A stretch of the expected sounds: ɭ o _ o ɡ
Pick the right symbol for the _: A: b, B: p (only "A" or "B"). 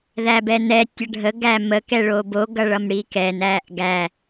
A